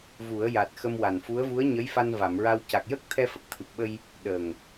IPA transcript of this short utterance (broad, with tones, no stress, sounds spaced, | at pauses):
v u˨˩˦ ə̯ j a˨˩ t̚ x ə˧ m w a˨˩ n f u˧˥ ə̯ v u˧˥ ə̯ ɲ ə˧˥ j f a˧ n v a˨˩˨ m ɹ a˧ w c a˨˩ k̚ j ə˦˥ k̚ t̪ʰ ɛ˧ f ə˨˩ k̚ t̪ʰ ɨ˨˩ p̚ ɓ ə˧ j | ɗ əː˨˩ ŋ